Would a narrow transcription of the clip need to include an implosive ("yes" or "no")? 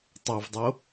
no